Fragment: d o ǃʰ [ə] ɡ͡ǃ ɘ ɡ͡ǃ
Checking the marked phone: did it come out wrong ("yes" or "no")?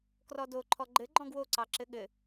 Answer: yes